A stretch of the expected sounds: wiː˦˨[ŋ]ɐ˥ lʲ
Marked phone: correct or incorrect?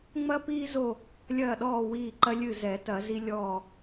incorrect: ǃ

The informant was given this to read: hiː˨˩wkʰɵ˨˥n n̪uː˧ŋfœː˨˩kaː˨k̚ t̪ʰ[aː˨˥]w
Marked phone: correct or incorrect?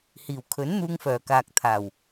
incorrect: aː˨˩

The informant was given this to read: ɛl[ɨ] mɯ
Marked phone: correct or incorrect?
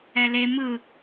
incorrect: e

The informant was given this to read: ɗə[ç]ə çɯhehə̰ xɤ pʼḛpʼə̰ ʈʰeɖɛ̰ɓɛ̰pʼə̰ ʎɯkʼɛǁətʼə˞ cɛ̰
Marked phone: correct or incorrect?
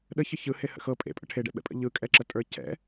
correct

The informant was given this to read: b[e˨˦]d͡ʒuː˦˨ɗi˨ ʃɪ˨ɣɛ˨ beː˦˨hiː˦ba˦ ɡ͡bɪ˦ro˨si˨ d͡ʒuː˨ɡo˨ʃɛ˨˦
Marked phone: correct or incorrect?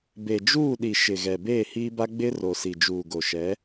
incorrect: e˨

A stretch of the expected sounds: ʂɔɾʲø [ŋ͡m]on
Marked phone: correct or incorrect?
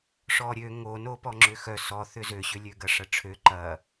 incorrect: ŋ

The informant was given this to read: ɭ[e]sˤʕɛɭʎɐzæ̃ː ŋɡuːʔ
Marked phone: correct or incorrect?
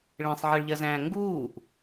incorrect: ẽ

